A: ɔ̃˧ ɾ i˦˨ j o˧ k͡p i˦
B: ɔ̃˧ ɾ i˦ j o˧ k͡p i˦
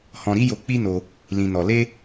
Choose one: B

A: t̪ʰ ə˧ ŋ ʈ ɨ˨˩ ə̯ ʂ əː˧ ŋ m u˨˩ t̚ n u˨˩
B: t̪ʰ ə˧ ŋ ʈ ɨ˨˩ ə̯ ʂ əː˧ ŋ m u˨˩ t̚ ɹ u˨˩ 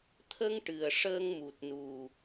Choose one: A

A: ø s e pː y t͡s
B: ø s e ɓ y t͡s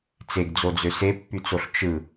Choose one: A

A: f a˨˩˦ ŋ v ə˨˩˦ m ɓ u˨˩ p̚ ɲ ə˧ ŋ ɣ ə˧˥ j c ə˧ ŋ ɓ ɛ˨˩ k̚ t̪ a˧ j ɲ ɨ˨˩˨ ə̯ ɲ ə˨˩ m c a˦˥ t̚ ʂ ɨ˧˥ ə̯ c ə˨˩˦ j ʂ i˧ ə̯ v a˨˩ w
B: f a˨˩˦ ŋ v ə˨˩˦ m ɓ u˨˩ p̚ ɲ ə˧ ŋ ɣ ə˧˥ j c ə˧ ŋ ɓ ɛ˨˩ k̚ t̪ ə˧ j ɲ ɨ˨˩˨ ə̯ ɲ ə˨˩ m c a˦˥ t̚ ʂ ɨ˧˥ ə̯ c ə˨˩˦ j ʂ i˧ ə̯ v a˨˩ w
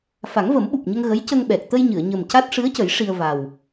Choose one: B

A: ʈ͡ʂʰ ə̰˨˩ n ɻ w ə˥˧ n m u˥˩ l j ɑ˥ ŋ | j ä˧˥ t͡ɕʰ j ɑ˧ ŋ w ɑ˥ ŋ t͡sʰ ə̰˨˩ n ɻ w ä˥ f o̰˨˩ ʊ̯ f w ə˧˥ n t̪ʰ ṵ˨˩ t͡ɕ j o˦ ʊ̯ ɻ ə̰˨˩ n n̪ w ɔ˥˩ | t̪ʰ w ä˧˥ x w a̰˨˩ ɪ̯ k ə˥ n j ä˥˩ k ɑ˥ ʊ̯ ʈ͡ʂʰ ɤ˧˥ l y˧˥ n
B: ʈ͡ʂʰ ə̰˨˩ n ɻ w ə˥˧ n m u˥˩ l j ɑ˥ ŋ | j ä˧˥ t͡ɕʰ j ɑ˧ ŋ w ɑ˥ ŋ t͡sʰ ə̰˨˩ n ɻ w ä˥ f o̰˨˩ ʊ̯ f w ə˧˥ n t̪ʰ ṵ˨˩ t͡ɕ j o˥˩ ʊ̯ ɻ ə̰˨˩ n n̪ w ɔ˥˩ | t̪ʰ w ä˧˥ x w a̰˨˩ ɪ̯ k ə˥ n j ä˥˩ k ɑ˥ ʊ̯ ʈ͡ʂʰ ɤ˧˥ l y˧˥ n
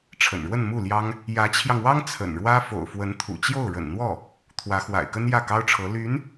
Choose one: B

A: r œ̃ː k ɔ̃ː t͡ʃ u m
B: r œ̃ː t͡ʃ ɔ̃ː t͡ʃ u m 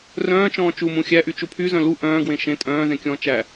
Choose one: B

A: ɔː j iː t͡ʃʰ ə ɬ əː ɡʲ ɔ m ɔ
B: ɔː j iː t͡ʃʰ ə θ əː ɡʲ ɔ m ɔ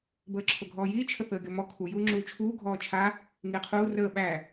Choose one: B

